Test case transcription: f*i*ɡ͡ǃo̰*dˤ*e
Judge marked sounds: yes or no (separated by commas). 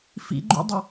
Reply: no, yes